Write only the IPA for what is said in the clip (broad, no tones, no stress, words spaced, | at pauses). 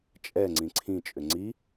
t͡ʃʼɛŋ͡ǀĩ ǀʰĩt͡ʃʼʏ ŋ͡ǀi